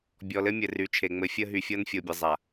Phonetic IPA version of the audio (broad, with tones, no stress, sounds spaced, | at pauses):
bʲ ɔ˨ l ɘ˦ mʲ ɘ˨ r y˨˦ t͡ʃʰ e˨ ŋ͡m ɘ˨˦ fʲ ə˦ ɦ y˨ fʲ ɤ˦ n fʲ o˨ bʲ ɘ˨ zˤ a˨